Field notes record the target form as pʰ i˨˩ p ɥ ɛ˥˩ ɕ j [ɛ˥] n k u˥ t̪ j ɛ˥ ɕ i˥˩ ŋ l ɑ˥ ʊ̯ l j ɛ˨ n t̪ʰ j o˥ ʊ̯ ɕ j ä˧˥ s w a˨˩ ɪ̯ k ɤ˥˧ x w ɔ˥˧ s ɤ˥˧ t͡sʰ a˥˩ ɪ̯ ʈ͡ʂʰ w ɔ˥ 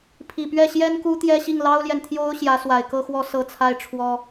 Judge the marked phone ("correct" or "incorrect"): correct